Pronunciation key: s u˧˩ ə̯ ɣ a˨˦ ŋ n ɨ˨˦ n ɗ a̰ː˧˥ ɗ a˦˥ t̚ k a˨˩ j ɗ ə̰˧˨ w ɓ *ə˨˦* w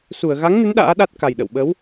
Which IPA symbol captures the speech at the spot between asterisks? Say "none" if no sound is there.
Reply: ə˨˦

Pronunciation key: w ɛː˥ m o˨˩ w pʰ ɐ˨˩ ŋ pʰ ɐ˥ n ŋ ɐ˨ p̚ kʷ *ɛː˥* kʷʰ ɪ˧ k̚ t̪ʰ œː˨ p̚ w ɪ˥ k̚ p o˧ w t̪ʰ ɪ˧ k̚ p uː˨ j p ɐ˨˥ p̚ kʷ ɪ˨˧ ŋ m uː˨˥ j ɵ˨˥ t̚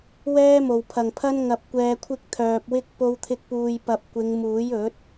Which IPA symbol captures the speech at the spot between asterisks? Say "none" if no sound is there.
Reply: ɛː˨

